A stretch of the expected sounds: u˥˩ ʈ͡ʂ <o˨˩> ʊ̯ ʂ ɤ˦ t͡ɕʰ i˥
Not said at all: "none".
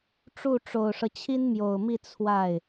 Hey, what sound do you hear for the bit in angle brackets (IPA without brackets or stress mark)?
o˨˩